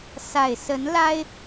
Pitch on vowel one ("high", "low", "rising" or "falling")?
low